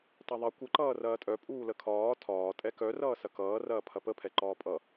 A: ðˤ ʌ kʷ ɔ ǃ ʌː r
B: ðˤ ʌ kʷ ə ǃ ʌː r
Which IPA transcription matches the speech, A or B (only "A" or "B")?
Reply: B